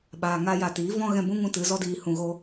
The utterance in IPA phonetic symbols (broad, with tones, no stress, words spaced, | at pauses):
ɓaː˨ŋaː˧ja˨tiː˨˦ vɔ̃˦ ɣɛ̃˧bũ˦ŋũ˧ tɨ˨˦zɔ˦diː˧ hũ˧ɣo˦